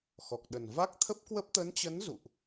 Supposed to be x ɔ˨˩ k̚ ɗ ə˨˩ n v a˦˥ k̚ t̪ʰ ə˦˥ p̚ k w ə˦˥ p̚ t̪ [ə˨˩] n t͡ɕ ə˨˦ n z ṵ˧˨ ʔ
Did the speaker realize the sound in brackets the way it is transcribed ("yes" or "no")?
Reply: no